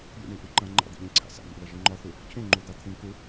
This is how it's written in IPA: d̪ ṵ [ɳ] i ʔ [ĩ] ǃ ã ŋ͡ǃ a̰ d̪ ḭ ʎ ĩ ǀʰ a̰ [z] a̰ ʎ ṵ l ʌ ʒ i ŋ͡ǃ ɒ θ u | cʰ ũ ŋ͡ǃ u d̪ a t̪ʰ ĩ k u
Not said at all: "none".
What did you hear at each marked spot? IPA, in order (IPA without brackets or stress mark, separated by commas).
ɳ, i, s